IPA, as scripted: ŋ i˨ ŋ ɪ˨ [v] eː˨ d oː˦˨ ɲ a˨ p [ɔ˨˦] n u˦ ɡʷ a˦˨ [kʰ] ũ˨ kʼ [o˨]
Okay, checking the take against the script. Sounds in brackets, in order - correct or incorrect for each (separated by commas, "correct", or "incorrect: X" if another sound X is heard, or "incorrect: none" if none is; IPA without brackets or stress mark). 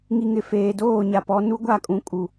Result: incorrect: f, correct, incorrect: kʼ, incorrect: u˨